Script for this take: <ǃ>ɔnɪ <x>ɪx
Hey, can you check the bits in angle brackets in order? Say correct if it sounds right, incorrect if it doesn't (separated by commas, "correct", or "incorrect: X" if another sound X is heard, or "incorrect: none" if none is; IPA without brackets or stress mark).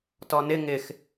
incorrect: t, incorrect: ŋ